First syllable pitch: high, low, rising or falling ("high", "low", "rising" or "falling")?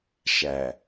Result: low